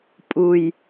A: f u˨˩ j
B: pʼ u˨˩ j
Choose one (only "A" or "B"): B